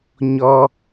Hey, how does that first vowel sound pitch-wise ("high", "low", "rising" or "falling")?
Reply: high